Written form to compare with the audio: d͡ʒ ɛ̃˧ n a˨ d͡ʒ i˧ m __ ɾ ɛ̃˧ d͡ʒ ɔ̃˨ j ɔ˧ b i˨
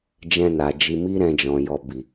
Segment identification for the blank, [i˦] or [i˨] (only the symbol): i˦